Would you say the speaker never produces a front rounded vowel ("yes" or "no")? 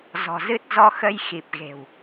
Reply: yes